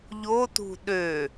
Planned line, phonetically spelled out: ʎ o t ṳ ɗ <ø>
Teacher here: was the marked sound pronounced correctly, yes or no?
yes